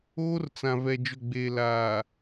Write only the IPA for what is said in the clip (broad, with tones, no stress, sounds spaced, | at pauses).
oː˦ r t͡s ã˨ v ɛ˨ d͡ʒ ʊ˨ ɡ͡b eː˨ l aː˨